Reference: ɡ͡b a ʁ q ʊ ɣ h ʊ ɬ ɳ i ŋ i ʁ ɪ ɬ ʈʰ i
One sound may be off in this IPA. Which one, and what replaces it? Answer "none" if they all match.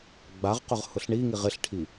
ɣ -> ʁ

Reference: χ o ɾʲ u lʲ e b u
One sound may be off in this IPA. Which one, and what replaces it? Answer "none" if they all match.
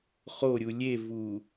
b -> v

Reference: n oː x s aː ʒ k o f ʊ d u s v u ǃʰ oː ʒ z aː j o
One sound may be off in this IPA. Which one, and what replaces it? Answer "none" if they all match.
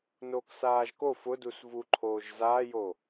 x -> k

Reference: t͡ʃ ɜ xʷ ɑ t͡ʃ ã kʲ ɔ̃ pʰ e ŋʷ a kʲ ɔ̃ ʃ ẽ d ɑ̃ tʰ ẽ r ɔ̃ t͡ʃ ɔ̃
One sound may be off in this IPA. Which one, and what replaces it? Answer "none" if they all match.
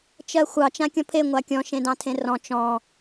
none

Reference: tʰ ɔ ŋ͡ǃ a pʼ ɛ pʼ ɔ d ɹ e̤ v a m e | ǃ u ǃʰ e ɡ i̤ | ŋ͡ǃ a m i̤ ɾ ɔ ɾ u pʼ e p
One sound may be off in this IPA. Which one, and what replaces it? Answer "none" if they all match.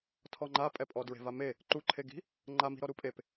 none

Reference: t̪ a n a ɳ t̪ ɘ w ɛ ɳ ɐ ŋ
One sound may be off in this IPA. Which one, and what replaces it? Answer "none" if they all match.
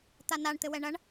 ŋ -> ɳ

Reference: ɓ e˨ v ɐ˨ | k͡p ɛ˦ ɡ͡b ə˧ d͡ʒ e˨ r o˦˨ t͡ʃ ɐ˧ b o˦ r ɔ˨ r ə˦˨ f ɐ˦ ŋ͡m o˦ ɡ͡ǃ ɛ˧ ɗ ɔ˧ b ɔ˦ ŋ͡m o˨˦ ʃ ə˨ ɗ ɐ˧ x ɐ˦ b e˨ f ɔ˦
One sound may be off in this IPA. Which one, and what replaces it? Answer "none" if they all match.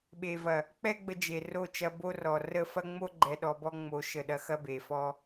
none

